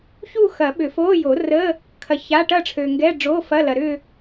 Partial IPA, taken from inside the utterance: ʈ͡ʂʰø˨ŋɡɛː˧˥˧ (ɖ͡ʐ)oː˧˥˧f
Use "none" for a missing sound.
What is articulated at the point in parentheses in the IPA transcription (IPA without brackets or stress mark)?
ɖ͡ʐ